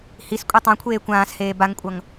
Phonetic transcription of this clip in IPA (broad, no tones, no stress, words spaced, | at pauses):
his kʷʼetˤã kʷʰeːkʷãːsheː baŋkʷʼʌŋ